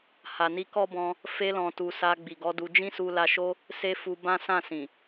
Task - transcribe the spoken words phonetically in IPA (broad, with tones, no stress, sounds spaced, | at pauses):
h a˨ n i˧ k ɔ˦ b ɔ̃˧ | f e˧ l ɔ̃˨ t u˨ s a˧ ɡ͡b i˨ ɡ ɔ˨˦ d u˧ d͡ʒ ĩ˦ s u˧ l a˧ ʃ o˦ | s e˦ f u˧ b ã˦ s ã˦˨ s ĩ˨